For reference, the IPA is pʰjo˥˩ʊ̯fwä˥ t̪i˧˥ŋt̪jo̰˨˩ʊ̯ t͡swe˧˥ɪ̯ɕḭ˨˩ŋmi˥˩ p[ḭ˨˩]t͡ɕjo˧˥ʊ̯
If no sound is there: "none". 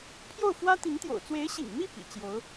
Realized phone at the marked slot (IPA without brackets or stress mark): ḭ˨˩